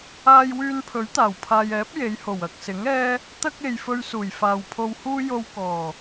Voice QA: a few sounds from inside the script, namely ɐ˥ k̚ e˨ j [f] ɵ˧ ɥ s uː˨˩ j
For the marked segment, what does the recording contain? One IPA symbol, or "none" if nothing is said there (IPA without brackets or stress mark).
f